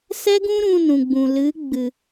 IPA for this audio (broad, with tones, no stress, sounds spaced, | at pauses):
s ɛ˦ ɡ ũ˦ ɾ ũ˧ n ũ˨ ɡ͡b ũ˨ l ɨ˨˦ ɡ͡b ɨ˨